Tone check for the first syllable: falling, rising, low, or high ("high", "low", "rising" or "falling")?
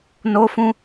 high